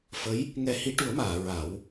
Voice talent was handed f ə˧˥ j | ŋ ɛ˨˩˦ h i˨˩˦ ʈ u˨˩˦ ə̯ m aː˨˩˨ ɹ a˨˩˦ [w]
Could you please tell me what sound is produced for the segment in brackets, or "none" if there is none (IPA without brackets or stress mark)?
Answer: w